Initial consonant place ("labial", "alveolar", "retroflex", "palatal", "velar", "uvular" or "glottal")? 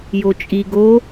palatal